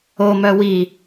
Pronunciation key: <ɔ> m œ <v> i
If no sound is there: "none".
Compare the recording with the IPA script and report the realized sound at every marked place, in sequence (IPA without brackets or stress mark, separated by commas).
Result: o, w